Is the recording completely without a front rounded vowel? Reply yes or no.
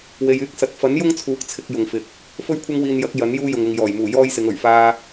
no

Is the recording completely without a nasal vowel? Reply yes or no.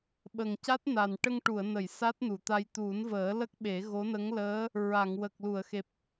yes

